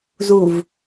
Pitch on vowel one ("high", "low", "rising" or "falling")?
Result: low